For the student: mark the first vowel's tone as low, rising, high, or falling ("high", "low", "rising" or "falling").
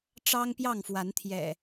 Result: high